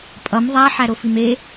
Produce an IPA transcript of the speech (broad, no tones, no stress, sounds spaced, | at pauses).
pʼ ʌ m ðˤ æ ħ æ ɾ o f i m e